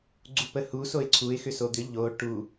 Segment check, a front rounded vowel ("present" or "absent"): present